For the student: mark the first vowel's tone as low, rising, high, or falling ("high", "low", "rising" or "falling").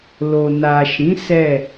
low